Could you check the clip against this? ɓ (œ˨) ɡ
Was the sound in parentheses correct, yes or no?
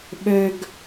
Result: yes